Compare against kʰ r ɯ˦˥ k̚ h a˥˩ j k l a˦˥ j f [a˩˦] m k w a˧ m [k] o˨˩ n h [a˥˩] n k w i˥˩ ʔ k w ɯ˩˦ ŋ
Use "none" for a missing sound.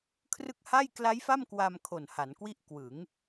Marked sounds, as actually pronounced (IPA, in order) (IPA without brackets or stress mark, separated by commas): a˥˩, kʰ, a˩˦